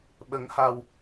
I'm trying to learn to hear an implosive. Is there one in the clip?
yes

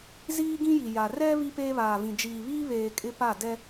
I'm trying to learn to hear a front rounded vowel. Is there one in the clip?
no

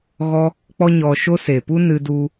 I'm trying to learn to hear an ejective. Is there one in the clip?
no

